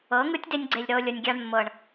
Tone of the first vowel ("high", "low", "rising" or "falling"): rising